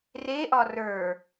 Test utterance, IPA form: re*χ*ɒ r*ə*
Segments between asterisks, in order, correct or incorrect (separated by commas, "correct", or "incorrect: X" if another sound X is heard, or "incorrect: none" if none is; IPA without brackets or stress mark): incorrect: ʔ, incorrect: ə˞